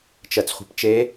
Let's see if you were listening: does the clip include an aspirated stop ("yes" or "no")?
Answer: no